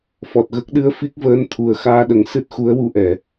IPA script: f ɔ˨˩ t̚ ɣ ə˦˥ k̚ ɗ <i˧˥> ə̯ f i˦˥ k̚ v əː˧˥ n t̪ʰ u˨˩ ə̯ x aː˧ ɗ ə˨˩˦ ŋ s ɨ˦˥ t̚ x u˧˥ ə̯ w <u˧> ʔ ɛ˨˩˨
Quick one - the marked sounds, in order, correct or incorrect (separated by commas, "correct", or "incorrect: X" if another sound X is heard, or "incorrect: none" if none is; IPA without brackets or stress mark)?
incorrect: ɨ˧˥, correct